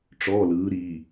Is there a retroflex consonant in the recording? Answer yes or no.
yes